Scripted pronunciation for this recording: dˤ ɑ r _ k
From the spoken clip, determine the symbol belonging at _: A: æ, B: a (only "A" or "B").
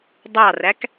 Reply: A